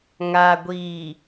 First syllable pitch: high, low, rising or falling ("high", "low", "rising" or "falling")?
low